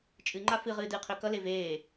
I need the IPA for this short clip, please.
t͡ʃʼ ɨ ŋ͡ǃ a f ɨ ʁ ɨː d ɨː qʰ ø k ʌ l e v eː

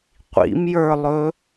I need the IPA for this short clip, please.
qʷ ḭ m j ə˞ lˠ ɵ

